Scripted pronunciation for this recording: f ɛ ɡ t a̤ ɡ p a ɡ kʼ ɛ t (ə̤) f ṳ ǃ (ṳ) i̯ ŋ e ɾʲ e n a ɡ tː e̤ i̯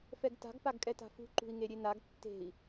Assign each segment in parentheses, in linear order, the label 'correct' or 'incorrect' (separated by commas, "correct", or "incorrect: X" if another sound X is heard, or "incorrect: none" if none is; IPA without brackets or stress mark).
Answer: incorrect: a̤, correct